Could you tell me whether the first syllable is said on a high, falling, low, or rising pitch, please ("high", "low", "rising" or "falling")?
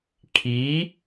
rising